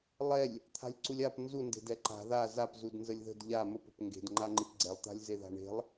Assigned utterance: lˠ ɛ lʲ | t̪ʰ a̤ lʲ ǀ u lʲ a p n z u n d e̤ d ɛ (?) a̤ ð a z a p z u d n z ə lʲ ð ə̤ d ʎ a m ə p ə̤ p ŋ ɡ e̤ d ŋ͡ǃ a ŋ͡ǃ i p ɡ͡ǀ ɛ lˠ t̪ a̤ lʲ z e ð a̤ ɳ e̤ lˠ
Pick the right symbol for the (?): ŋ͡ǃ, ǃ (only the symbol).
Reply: ǃ